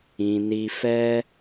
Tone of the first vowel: low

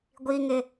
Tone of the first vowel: high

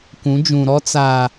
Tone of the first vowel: rising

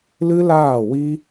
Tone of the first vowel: high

